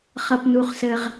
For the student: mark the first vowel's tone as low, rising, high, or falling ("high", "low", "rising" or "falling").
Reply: low